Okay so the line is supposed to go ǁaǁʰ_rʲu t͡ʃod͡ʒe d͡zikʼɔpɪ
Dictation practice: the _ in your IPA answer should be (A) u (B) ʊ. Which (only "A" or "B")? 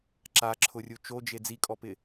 B